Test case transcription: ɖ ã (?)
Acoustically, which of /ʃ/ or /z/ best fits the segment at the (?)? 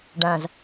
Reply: z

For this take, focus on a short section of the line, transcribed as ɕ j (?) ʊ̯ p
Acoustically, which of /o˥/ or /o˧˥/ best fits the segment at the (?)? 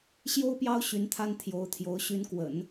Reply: o˥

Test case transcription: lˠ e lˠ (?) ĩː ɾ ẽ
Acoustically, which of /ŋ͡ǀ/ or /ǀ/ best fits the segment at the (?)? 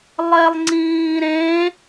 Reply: ŋ͡ǀ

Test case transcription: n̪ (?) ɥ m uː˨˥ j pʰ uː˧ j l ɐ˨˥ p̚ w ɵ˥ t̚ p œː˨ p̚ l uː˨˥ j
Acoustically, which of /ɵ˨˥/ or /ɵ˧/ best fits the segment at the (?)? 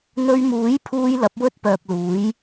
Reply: ɵ˧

